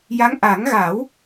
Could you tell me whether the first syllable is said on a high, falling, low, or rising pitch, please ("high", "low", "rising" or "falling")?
rising